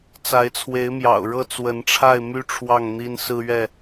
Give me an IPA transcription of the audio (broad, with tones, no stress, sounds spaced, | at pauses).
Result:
t͡s a˨˦ ɪ̯ t͡sʰ w e˨˦ ɪ̯ m j ɑ̰˨˩ ʊ̯ ɻ ɤ˥˨ t͡s w ə˨˦ n ʈ͡ʂʰ a˥˨ ɪ̯ m y˦ ʈ͡ʂʰ w ɑ˥˨ ŋ n̪ i˦ n s ɹ̩˦ ɥ ɛ˥˨